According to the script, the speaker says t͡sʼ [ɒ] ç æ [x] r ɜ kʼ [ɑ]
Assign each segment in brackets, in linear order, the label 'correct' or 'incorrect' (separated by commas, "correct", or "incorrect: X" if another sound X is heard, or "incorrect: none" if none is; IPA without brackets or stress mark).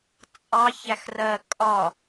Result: incorrect: ɑ, correct, incorrect: ɒ